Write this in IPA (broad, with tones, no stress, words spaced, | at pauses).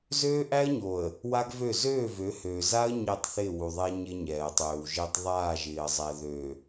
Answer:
zøː˦ʔæ˦ə̯ɲo˨ə̯ | wa˦ɡvø˦˨ zøː˦˨vø˨˦høː˨ za˦ə̯ ɲɪː˦˨tˤθɪː˦˨wu˨ðˤɛ˦ ɲɪ˦ɲɛː˨ə̯tˤøː˨wʒɪː˦tˤ ðˤaː˦˨ʒɪː˨ə̯zˤɛ˨ ðø˨